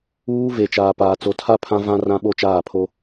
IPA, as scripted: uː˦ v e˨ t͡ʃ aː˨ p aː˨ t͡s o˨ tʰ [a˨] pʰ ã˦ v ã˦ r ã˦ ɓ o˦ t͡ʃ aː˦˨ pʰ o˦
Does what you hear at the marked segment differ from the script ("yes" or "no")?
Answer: yes